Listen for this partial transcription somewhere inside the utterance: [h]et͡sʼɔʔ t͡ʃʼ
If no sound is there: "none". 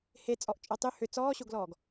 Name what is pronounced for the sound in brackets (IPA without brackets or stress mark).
h